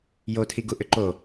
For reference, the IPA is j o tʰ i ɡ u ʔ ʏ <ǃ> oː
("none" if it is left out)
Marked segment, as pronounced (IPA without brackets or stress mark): ǃ